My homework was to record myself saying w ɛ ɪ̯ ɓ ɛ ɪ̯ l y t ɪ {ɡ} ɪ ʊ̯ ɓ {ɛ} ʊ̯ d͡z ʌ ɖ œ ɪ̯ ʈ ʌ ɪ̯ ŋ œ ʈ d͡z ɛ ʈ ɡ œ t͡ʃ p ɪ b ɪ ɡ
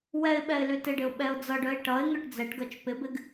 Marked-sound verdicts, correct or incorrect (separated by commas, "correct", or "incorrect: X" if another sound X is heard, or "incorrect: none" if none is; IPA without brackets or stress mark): incorrect: ɖ, correct